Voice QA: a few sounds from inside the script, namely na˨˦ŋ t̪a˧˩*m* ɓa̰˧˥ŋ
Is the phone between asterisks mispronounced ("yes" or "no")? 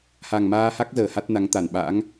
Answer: yes